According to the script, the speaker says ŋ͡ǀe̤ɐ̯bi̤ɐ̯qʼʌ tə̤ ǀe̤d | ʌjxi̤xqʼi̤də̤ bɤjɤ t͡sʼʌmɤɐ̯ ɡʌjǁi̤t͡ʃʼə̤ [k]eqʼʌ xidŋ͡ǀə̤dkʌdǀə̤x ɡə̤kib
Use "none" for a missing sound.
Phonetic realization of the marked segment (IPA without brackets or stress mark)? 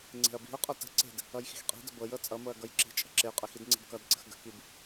ǁ